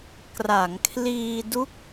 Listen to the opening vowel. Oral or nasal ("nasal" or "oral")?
oral